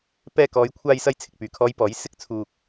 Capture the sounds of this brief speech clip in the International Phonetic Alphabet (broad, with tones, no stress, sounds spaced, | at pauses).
p ɛː˧ k ɔː˨˧ j kʷʰ aː˧ j s ɐ˧ j t͡sʰ ɪ˨ k̚ p yː˨˩ kʰ ɔː˨˧ j p ɔː˨˥ j s ɪ˥ k̚ t͡sʰ uː˧ k̚